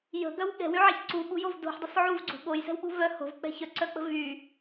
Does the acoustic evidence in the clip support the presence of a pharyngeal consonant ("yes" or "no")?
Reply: yes